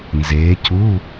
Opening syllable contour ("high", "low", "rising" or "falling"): rising